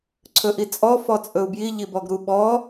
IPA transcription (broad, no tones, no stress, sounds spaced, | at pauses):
ǀʰ ɵ ʔ i t͡sʼ ɔ f ɔ t͡sʼ ɵ u̯ b j i ʎ i b ɔ ɡ ɾ u ɓ ɔ